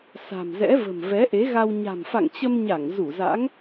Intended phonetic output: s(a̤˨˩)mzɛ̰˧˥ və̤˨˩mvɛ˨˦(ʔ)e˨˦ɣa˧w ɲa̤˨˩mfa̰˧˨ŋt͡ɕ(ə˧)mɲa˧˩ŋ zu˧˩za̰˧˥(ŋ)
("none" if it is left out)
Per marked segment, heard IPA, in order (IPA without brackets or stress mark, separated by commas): a̤˨˩, ʔ, ə˧, ŋ